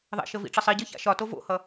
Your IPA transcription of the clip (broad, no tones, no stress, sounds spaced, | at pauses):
ðˤ ɛ̰ ʃ ə v ḭ ʈ͡ʂ ə sˤ i ɟ ɨ ç a̰ ʃ ɒ t o v o̰ h ʌ